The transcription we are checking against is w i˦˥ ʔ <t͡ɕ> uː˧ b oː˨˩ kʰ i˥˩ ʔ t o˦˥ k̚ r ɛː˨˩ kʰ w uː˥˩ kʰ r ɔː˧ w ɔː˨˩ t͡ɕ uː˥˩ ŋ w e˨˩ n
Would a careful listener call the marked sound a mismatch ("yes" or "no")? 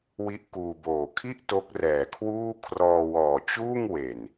yes